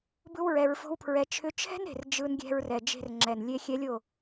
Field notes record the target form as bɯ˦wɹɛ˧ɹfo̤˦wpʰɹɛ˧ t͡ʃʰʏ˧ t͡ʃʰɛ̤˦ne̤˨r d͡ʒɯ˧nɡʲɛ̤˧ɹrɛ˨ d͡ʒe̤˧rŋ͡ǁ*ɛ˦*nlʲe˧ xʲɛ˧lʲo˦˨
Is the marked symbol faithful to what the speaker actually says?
no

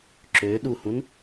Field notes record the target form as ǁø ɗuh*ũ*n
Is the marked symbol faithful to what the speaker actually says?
yes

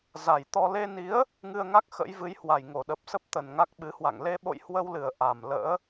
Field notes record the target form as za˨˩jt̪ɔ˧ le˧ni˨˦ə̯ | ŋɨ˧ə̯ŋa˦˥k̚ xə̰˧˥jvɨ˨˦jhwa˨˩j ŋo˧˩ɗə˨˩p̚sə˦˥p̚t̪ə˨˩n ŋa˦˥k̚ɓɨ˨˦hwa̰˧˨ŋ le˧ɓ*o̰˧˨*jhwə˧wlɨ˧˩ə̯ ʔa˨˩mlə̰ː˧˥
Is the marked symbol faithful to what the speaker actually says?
yes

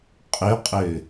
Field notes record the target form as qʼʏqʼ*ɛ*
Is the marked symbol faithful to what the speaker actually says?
no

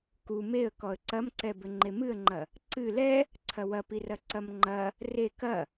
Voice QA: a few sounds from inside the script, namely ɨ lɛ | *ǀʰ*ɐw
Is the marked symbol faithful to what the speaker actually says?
yes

